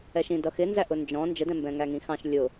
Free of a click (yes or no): yes